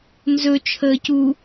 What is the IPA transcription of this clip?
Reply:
n z ɵ t͡ʃʰ əː c u

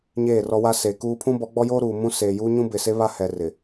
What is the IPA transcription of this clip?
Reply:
ɲ eː˦˨ r ɔ˦ w a˦ s e˨ k uː˦ pʰ ũ˦ b ɔ˨˦ ɡ͡b ɔ˦ j oː˦ ɾ uː˨ m ũ˦ s eː˨ j uː˦ ɲ ũ˦ b ɪ˨ s e˦ β a˦ h ɛ˨ r ɪ˨

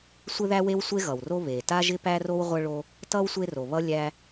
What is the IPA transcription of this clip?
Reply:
sʷ ɪ˥ ð æ˥ w e˥ w sʷ e˥ ɣ ʌ˩ w r o˥ β e˩ t a˥ ʒ ɪ˥ p æ˥ r o˥ w ʁʷ ʌ˥ ɭ o˥ | t ʌ˥ w sʷ e˥ r o˩ β ʌ˥ lʲ æ˥

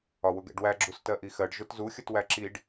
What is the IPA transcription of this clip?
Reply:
ɒ w ʊ ɡ ɛ̰ ɖ w æ ɡ͡ǁ u s t ɜ ʔ i x ɜ ɖ ʒ ʊ t z u xʲ ʊ t w æ ǁ i ɖ

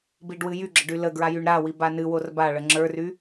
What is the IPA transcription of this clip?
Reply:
b i ɖ w ɨ j y ɡ͡ǁ ə ɖ y l ə ɡ ɹ a j y ɳ ɾ a w i b a n ɨ w o r b a ɭ ə ŋ͡ǁ ə˞ r y

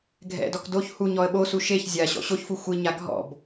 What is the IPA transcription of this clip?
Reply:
ɡʱ ɛ̰ d ɔ k d o ç h u ɲ ɔ ə̯ ɓ o s u ʃ e ç zʲ a ɕ ɔ̰ ɕ o ç f u xʷ i ɲ a ɡʱ ɔ̰ b

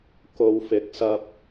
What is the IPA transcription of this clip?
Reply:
k o˨ w f ɪ˨˥ k̚ s ɐ˧ p̚

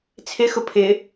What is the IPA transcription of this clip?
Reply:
t͡sʰ ɪ x ʊ pʰ ɪ

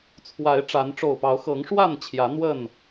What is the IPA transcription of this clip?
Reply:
t͡sʰ w a˨˦ ɪ̯ ʈ͡ʂ a˨˦ n ʈ͡ʂ o˨˩ ʊ̯ p ɑ˨˦ ʊ̯ x ɤ˨˦ ŋ ʂ w a˥˨ n t͡ɕʰ j ä˨˦ n̪ w ə˥˨ n

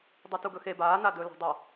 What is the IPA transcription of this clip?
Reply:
dˤ u t u ɡ ɵ x e b aː n a d ɵ l a̤ dˤ a

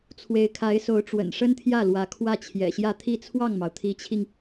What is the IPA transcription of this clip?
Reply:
t͡sʰ w e˧˥ ɪ̯ kʰ a˧˥ ɪ̯ s o˧˥ ʊ̯ ʈ͡ʂ w ə̰˨˩ n ʂ ə˥ n t̪ʰ j ä˥˩ l w ä˧˥ kʰ w ä˥˩ t͡ɕʰ j ɛ̰˨˩ ɕ j ä˥˧ t̪ʰ i˥˧ t͡sʰ w ɑ˥˩ ŋ m ɑ˩ ʊ̯ t̪ʰ i˧˥ t͡ɕʰ i˧ ŋ

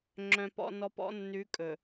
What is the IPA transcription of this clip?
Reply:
ŋ͡ǁ œ̃˨ p ɔ̰˨ n ɔ˨ p ɔ̰˨˦ nː ʉ˨˦ kʼ ɵ˨

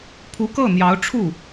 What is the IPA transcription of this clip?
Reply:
pʰ u˧˥ k ɤ˥˩ n̪ j ɑ˧˥ ʊ̯ ʈ͡ʂʰ u˥˩

